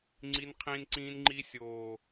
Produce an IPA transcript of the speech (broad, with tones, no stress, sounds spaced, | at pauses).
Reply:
ŋ͡ǀ i˦ n qʰ ĩː˦ n ǀ ĩː˦ n ŋ͡ǃ iː˦ sʲ oː˨